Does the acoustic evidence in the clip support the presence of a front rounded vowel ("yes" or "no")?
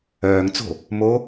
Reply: yes